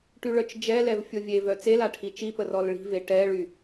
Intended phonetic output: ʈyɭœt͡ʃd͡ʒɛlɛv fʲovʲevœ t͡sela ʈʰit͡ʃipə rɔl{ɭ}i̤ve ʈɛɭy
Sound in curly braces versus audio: correct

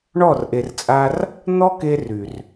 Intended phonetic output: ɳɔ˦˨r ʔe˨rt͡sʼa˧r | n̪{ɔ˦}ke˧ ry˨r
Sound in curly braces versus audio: correct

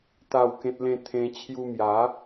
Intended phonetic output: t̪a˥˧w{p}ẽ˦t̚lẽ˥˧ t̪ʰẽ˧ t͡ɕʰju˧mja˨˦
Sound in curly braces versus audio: incorrect: k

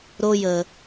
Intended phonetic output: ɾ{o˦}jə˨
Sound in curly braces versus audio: correct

